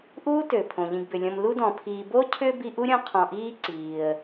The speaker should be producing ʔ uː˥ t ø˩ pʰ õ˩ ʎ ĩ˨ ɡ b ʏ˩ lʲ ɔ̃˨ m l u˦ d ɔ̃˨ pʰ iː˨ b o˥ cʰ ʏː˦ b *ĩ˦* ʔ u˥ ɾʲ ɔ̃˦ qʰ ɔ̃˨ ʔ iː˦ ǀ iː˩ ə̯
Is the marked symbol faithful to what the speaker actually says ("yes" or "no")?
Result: no